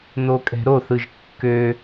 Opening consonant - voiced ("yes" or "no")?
yes